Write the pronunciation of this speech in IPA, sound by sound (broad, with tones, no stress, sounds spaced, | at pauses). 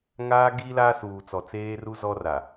ŋ aː˦ ɡ iː˦ l aː˦ s uː˨ t͡s ɔ˨ t͡s eː˦ r u˦ z ɔ˦ r a˨